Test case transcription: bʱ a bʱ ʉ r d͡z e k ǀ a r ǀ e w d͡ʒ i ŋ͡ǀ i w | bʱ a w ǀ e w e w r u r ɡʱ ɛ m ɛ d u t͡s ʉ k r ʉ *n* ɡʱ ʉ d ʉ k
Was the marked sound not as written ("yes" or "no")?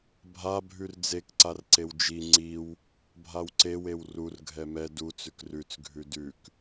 yes